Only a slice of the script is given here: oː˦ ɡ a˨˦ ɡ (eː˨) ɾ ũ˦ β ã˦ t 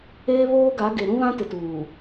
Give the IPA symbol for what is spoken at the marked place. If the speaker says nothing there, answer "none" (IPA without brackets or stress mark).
e˨